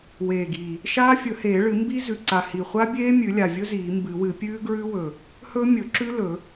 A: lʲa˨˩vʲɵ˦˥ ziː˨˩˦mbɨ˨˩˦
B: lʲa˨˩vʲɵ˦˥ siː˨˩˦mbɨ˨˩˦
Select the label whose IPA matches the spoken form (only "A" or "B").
A